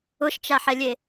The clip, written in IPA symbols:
ʊ ʃ t͡ʃ a ħ ɛ lʲ e

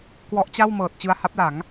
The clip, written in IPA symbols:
k w ɔ˦˥ ʔ t͡ɕ a˥˩ w m ɤː˨˩ t̚ t͡ɕ ɯ˧ a̯ h a˦˥ p̚ l a˩˦ ŋ

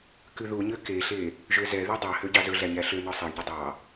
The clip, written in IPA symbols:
k ʉ ð u ɲ ø k e ɬ e | ʒ ø z ɛ ð y dˤ ɑ h ø ɟ ɑ z ɵ ɮ æ ɲ æ ɬ ø n ɔ sˤ e ɳ ɟ u dˤ ɑ

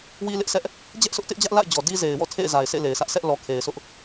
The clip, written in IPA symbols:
w i˦ l ɪ˦ ʔ sʰ ɛ˦ ʔ | d͡ʑ ɛ˦ ʔ s ʊ˦ ʔ t ɪ˦ ʔ d͡ʑ ä˦ ʔ l a̰˦˨ ɪ̯ d͡ʑ ɔ˨ d i˦ z e˨ ɪ̯ w ɔ̰˦˨ tʰ ḛ˦˨ ɪ̯ z a˨ ɪ̯ sʰ ḛ˦˨ l e˨ ɪ̯ sʰ ä˦ ʔ sʰ ɛ˦ ʔ l ɔ˨ kʰ e˨ ɪ̯ s ʊ˦ ʔ

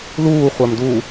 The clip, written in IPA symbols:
l uː χʷ a m d u

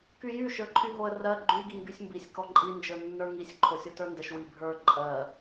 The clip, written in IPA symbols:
k y j y ʃ ə˞ ǃʰ y ɦ o ə̯ r ɜ ɡ͡ǃ y ɡ i ŋ ɡ y sʲ m b i sʲ k ɔ ǃʼ i n d͡ʒ ə˞ nː ə˞ ŋ i sʲ ǃʰ o sʲ o t ə˞ n d ə ʃ w i bʱ ə˞ ǃʼ ɜ

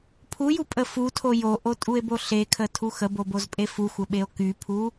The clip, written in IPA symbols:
pʰ u j u pʼ ə f u tʰ o j o ʔ o tʼ u e̯ b o ɬ e kʰ ə tʰ u x ə b o b o z pʼ e f u xʷ ə ɓ e o̯ k y pʰ u

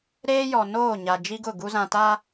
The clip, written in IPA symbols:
ɾ eː˦ j ɔ˨ n oː˦˨ ɲ a˨ d͡ʒ i˦ ɡ ʊ˦˨ ɡ u˦ z ã˨ t a˦

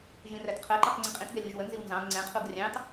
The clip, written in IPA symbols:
ʒ ĩ r æ t qʰ ɜ ǃ ʌ q ŋ͡ǀ ĩ qʼ ĩ t ɡ ɛ lʲ u ʒ w ə n z i w n z ɑ̃ ɡ ŋ͡ǀ ɛ̃ qʰ u ɡ rʲ ɑ̃ t

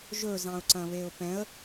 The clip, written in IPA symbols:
ʒ ɵ z ɑ̃ ʊ̯ ǀ ɐ̃ β e ʊ̯ p ɛ̃ ə̯

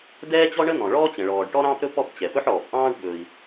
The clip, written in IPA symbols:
d ɛː˥ t͡ɕ ɔ˥ ɳ ə˥ n̪ ɔ̃˩ ɭ ɔː˥ t͡ɕ ə̃˩ ɭ ɔː˩ ɖ ʈ ɔ˥ ɾ ɑ̃ː˥ p ɾ ɵ˥ p ɔ˥ p t͡ɕ ɛ˩ p ɵ˥ ħ ɔː˩ p ʔ ɑ̃ː˥ ɖ ɓ ɵ˩ i̯

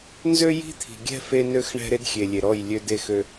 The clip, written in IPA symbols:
n z ø˦ j i̤˦ t̪ʰ i̤˨ ɡʲ ɛ̤˦ f e˦ n ø˦ x ɳ ɛ̤˦ ɾ e˦ d xʲ e˨ lʲ e˨ ɾ ɔ˦˨ j lʲ ø˦ d e˦˨ x ø˦

